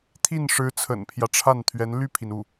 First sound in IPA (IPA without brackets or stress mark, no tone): t̪ʰ